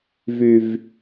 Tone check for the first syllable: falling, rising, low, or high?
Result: low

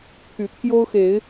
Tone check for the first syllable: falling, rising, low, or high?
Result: rising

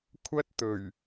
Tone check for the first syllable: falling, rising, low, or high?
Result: high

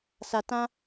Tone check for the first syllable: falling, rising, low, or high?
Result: low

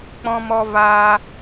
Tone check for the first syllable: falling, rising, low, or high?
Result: high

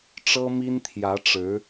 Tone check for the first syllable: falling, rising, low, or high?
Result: high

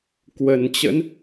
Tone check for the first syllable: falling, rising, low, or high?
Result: low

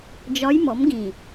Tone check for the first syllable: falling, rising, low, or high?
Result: rising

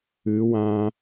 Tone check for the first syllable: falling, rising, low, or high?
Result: rising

